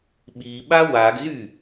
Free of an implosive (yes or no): no